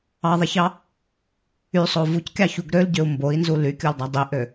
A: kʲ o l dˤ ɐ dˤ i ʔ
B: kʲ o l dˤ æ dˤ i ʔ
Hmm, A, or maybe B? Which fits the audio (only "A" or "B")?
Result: B